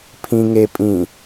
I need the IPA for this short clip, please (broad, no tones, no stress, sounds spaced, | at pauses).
pʰ ĩ ŋ e pʼ ĩ